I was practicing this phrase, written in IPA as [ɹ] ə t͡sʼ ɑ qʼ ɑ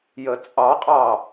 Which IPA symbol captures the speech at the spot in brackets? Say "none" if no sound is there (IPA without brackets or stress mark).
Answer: j